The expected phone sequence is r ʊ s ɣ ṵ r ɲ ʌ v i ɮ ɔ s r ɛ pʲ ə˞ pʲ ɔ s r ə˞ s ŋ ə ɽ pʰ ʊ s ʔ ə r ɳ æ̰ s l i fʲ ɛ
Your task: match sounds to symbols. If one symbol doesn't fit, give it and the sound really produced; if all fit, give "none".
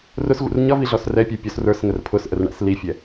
ɽ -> r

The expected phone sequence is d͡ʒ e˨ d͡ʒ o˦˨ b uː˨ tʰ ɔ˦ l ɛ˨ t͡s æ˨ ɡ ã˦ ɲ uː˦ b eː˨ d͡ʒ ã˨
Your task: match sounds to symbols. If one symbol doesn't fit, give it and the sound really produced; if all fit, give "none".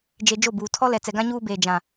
æ˨ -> ɛ˨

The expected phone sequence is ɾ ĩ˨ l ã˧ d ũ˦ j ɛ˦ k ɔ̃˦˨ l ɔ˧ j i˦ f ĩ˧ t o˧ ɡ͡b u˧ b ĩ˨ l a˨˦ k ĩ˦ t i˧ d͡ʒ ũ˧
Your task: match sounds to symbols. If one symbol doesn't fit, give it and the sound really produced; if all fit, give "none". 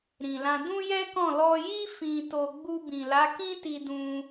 d͡ʒ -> d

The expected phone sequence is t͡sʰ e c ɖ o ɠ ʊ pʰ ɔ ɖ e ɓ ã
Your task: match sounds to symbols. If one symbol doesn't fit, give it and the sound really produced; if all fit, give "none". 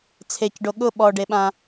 pʰ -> ɓ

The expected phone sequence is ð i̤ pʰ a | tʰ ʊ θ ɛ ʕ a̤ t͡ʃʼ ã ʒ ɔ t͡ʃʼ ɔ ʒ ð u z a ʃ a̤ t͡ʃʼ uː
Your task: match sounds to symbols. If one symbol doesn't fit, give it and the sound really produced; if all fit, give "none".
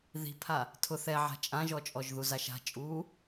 none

